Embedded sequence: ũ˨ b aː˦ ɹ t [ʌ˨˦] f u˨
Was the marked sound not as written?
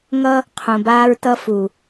yes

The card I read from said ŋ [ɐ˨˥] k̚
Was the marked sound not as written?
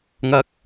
yes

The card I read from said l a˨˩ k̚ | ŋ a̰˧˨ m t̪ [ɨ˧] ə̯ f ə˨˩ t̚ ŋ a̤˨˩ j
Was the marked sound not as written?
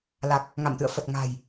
yes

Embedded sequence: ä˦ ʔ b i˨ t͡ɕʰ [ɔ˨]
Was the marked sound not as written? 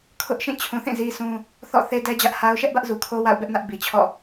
yes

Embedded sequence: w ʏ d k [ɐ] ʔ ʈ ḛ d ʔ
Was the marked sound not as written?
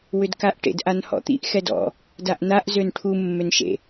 yes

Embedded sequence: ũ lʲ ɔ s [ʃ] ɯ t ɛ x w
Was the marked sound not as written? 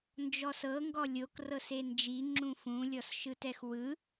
no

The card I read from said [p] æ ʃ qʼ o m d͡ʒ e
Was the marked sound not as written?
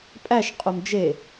yes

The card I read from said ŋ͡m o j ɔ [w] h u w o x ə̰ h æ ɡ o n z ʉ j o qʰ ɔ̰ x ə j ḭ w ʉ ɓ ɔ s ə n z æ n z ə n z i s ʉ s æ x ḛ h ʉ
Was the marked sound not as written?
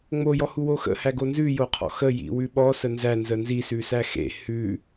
yes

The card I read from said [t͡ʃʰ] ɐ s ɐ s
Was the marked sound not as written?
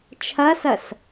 no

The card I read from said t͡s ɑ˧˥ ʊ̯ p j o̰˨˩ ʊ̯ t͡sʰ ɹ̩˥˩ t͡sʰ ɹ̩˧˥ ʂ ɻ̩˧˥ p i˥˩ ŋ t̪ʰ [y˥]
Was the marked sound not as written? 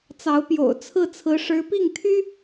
no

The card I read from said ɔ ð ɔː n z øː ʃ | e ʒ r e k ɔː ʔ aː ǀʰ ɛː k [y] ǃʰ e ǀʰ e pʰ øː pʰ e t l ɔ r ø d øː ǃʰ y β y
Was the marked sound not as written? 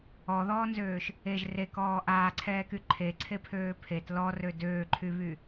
no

